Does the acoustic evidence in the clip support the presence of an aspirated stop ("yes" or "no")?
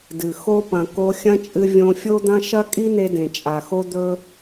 no